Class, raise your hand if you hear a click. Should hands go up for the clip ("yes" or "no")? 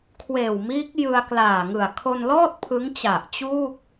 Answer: no